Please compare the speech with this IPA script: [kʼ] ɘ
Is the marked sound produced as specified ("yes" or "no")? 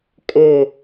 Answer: yes